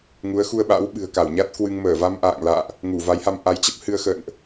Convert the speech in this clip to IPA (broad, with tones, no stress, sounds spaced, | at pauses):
ŋ u˨˦ ə̯ x u˧ ə̯ ɓ a̰˧˥ w ɓ ɨ̤˨˩ ə̯ k a˧˩ w ɲ a˦˥ t̚ k w ɨ˧ ŋ m əː˧˩ v a˧ m ʔ a̰ː˧˨ ŋ l a̰ː˧˨ ʔ | ŋ u˧˩ v a˨˦ j h a˧ m ʔ a˨˦ j t͡ɕ ə˦˥ p̚ h ɨ˧ ə̯ x ə̰ː˧˨ n ʔ